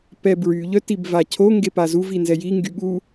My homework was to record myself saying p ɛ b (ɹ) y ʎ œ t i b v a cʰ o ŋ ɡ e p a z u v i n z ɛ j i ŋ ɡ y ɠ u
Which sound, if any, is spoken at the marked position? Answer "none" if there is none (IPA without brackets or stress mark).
ɹ